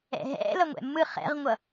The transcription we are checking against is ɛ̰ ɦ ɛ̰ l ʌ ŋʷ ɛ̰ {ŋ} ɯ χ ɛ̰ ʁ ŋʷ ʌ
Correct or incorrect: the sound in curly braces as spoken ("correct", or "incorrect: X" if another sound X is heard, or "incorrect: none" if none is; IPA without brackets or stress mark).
incorrect: mː